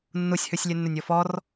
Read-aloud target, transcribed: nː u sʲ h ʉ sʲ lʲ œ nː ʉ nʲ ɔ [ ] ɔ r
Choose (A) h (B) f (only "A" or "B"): B